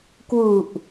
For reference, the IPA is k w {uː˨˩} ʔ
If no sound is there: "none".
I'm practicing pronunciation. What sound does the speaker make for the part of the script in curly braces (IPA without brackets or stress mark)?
u˨˩